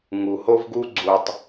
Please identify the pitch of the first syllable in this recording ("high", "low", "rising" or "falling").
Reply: low